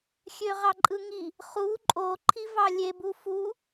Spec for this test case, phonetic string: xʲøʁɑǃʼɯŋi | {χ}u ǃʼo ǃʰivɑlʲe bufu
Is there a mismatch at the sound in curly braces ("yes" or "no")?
no